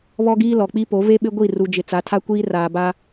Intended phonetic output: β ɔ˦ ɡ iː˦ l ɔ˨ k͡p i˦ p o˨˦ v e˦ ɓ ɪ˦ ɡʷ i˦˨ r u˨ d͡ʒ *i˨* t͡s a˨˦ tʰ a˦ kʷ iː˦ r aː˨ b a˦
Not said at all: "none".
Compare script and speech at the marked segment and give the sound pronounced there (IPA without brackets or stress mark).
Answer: ɪ˨